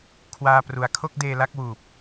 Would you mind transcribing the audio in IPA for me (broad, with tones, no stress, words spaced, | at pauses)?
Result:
kʰwaː˧pru˩˦a̯ kʰo˥˩k̚deː˧la˦˥k̚ wuː˨˩p̚